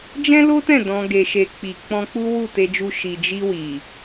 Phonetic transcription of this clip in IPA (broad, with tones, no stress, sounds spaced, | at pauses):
d͡ʒ ɛ̃˦ l o˦ t ɛ̃˦˨ d ɔ̃˧ ɡ e˨ ʃ e˨ k͡p i˨ k͡p ɔ̃˧ k͡p u˦ w u˦˨ t e˧ d͡ʒ u˧ ʃ i˨ d͡ʒ i˧ w i˨